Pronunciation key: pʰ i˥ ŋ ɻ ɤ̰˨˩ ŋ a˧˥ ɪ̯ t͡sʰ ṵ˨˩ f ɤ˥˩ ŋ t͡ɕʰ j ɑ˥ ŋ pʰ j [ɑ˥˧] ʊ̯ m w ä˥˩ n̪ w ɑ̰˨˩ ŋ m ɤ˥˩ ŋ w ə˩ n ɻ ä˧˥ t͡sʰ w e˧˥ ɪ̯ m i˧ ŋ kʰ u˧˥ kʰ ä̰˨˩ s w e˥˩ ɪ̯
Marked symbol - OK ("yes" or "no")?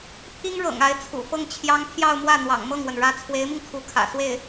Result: yes